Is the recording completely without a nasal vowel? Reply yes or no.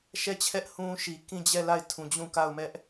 no